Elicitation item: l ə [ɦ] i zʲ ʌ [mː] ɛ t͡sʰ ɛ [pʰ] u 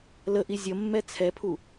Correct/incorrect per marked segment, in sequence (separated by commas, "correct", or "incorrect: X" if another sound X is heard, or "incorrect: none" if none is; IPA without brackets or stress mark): incorrect: ʔ, correct, correct